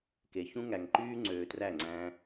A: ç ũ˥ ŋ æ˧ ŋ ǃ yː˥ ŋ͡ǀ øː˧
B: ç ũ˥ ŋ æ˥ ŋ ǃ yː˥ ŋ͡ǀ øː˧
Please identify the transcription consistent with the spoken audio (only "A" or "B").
A